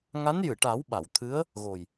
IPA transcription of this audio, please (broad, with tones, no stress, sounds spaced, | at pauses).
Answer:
ŋ a˧˥ n j ɨ˨˩˨ ʈ a˨˩˦ w ɓ a˨˩˨ w t̪ʰ ɨ˧˥ ə̯ | ɣ o˨˩ j